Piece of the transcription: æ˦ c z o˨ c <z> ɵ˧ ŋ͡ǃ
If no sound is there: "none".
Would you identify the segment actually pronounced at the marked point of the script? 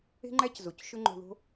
ʃ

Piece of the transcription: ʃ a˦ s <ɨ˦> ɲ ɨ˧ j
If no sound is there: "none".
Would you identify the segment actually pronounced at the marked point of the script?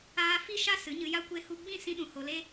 ɨ˨˦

